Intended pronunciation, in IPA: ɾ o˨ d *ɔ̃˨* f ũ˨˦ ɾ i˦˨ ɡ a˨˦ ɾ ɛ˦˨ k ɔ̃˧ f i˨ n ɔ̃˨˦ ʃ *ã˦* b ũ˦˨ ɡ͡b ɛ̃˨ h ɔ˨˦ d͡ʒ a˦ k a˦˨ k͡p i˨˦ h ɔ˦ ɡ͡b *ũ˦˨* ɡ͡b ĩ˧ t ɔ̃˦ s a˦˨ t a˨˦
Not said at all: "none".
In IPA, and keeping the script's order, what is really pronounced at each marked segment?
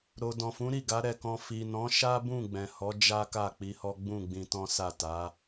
ɔ̃˨, a˦, ũ˦˨

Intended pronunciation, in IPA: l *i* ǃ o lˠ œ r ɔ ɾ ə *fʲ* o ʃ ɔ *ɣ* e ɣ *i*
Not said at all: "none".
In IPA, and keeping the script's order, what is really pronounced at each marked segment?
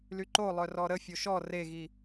y, fʲ, r, i

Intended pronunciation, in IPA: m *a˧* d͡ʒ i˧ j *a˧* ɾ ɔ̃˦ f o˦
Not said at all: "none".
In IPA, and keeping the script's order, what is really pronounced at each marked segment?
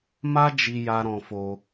a˦, a˧

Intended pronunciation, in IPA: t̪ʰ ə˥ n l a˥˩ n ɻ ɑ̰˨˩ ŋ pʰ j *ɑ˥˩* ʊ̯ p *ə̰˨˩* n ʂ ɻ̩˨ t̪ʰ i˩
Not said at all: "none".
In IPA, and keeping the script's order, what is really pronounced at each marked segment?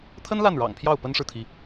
ɑ˥˩, ə˥

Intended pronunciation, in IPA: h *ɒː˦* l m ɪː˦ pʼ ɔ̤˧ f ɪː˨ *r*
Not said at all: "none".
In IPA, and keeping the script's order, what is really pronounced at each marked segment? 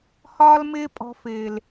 ɒː˦, l

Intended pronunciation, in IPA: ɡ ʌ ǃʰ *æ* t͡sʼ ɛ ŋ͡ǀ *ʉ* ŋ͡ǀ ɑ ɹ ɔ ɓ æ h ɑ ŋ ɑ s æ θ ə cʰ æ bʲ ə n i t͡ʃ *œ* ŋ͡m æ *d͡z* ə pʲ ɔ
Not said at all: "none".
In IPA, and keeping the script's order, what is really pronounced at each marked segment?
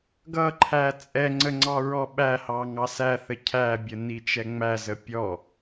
æ, ə, ɛ, z

